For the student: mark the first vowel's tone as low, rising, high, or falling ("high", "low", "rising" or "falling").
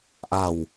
low